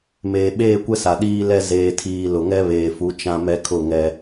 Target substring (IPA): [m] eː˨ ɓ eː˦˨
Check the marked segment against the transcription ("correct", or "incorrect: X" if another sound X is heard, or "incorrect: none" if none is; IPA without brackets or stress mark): correct